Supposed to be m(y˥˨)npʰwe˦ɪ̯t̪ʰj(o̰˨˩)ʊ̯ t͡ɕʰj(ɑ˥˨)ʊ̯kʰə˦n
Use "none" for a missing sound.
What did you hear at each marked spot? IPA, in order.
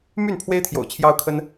y˥˨, o̰˨˩, ɑ˦

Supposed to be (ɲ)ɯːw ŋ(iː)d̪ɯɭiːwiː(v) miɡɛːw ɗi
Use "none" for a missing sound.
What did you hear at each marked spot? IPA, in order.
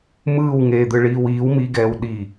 m, eː, w

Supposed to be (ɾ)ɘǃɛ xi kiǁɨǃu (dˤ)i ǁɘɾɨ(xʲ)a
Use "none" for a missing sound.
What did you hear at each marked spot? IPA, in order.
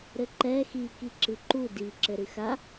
ɾ, d, x

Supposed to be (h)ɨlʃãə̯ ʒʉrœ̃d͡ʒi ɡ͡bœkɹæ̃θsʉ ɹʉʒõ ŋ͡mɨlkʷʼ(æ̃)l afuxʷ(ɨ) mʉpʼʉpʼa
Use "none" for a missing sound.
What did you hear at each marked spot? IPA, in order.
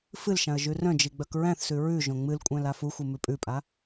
f, æ̃, ɨ

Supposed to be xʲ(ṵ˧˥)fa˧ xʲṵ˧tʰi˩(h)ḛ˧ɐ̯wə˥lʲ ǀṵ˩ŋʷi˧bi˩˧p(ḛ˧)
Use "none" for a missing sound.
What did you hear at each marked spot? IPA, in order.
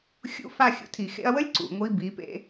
ṵ˧˥, x, ḛ˧

